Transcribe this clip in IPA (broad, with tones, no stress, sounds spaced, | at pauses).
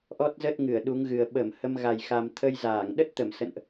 ʔ ɔ˦˥ t̚ z ə˦˥ t̚ ŋ ɨ˧˩ ə̯ ɗ u˨˦ ŋ ɣ ɨ˨˩ ə̯ ɓ ə˧˩ m h ə˧ m ɣ a˨˩ j x a˧ m t̪ʰ ə˧ j z aː˧˩ ŋ ɗ ə˦˥ t̚ t̪ ə˧˩ m s ə̰˧˨ n ʔ